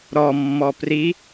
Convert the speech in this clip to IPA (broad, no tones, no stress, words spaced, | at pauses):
ɾɔmːɔ pri